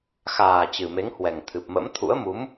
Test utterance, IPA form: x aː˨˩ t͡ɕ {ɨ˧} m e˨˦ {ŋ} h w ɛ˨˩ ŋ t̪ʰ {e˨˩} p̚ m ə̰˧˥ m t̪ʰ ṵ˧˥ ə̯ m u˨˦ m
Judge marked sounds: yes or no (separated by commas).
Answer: no, yes, no